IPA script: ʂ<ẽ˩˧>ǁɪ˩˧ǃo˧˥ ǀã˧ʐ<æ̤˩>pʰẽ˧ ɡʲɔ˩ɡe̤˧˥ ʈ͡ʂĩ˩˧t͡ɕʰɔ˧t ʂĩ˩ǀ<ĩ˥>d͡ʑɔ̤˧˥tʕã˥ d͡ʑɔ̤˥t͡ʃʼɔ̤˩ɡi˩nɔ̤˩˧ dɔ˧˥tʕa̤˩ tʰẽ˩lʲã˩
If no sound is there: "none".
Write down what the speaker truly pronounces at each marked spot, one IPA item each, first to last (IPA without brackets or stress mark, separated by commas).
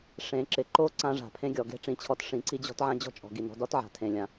ẽ˩˧, a̤˩, i˥